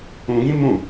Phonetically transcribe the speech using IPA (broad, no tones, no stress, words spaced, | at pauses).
ũɡĩ mũ